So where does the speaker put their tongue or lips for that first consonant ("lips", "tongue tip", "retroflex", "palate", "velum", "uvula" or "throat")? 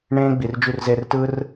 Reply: retroflex